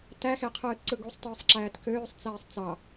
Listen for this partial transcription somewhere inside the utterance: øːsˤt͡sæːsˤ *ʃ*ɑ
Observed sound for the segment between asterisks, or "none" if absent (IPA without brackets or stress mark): t͡s